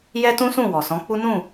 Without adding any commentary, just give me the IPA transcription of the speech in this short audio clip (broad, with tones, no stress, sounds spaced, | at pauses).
j ɛ˦ t ũ˦ s ũ˦˨ w ɔ˨ s ɔ̃˨˦ k͡p u˦ n ũ˦˨